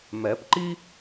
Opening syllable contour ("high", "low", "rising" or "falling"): rising